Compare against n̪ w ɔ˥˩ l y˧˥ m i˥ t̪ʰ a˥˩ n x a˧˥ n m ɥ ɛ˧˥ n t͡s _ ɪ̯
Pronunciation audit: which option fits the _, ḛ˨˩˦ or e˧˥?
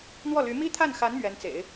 ḛ˨˩˦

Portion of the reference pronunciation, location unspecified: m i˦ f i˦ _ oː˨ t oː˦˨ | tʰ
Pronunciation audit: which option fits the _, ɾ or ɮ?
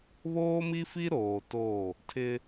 ɾ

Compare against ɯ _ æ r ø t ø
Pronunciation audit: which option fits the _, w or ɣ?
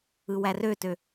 w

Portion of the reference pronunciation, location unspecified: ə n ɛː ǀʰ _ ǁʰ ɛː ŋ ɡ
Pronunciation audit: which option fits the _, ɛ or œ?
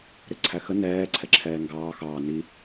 ɛ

